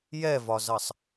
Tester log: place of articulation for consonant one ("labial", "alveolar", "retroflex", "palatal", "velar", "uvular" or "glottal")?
palatal